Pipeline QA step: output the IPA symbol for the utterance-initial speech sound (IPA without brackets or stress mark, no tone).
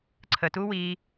ǀʰ